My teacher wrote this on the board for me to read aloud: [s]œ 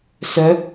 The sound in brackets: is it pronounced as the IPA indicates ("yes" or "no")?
yes